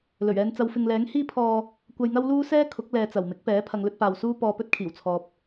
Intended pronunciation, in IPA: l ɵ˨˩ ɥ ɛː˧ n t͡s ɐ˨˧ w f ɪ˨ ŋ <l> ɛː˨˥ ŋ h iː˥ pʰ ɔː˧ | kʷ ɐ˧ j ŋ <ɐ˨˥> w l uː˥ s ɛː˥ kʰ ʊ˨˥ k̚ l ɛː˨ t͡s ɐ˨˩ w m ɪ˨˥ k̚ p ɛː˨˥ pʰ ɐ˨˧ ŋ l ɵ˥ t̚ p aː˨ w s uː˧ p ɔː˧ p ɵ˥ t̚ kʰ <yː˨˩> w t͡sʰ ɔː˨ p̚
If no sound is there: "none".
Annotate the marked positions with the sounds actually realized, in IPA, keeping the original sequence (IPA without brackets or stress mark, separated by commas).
l, ɐ˥, iː˨˩